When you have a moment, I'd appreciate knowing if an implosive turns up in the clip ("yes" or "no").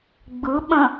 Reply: yes